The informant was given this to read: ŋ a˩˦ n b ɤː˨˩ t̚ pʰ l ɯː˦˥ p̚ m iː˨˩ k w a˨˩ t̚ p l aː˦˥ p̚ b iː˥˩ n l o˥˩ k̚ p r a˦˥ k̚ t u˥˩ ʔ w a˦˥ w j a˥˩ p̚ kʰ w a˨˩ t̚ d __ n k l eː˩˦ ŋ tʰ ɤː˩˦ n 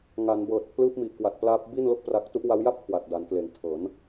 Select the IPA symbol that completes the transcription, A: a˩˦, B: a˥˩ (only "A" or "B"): A